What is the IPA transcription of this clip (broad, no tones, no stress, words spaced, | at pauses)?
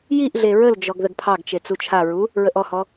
jiʔɮe ɹəld͡ʒɔɡ ðəɡpʰɑɡt͡ʃe t͡sut͡ʃʰaɹu | ɹəʔɔhɔ